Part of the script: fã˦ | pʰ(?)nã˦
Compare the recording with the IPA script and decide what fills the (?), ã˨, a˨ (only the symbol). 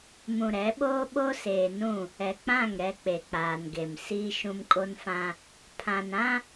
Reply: ã˨